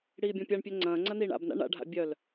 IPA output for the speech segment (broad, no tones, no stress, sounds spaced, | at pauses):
ɽ iː bʲ ɔ̃ pʲ a ɳ pʲ ɛ ŋ͡ǀ ɐ̃ː ŋ͡ǀ ɐ n iː ɳ a̰ b n a̰ ɳ a̰ ɖʱ a̰ bʲ œ l